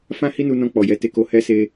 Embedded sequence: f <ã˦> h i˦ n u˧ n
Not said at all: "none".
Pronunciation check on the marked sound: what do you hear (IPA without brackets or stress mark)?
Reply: ã˦